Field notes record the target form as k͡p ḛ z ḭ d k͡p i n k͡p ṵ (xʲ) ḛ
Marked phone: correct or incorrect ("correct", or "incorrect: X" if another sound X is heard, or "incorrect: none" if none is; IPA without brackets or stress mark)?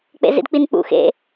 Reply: incorrect: x